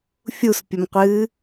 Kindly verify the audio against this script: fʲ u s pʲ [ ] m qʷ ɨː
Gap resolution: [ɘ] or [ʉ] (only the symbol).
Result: ɘ